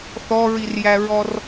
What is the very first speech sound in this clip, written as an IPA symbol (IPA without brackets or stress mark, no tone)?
θ